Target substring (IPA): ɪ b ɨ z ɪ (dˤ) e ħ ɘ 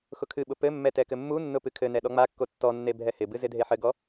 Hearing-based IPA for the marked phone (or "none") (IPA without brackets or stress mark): dʱ